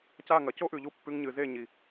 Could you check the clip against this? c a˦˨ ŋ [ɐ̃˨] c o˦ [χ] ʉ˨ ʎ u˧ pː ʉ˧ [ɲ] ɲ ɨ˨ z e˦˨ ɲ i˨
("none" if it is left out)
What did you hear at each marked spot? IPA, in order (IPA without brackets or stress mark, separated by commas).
ɐ˨, ʔ, ŋ